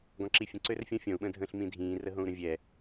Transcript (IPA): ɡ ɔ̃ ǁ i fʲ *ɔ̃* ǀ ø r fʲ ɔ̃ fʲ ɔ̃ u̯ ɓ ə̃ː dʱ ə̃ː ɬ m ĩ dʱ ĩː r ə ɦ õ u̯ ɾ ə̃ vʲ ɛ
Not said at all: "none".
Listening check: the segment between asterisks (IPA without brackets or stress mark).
ə̃